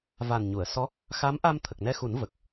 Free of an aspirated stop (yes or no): no